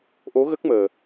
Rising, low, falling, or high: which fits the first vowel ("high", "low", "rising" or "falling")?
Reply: rising